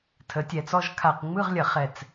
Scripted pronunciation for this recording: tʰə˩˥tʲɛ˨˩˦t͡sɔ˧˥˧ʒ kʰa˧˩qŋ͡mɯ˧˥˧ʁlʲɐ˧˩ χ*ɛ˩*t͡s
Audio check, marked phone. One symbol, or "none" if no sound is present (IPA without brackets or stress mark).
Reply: ɛ˧˩